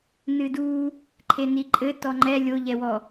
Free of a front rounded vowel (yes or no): yes